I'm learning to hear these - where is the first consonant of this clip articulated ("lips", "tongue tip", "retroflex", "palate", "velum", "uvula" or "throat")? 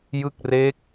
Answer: palate